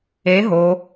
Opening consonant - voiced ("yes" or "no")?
yes